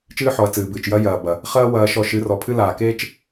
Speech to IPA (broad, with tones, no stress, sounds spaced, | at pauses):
t͡ʃ ɨː˦ ħ ɔ˨ ɐ̯ t͡s ɨː˨ b ɨː˨ t͡ʃ j ɐ˦ j ɐː˨ b ɐ˨ | χ ɐː˦ w ɐː˧ ʃ ɔ˧ ʃ ɨ˨˦ r ɔ˨ pʰ ɨ˦ l aː˨ k eː˦ t͡ʃ